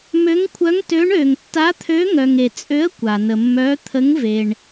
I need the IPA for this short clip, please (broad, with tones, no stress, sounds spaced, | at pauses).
m ø˧˥ ŋ kʷʰ œ˧˥ ŋ t ø˧˥ ɳ ø˨ ŋ tː a˧˥ t̪ʰ ø˧˥ ŋ œ˨ ŋ e˨ t͡sʼ ø˧˥ ə̯ kʷ a˨ n ə˨ mː œ˧˥ t̪ʰ ə˧˥ ŋ v e˨ ɳ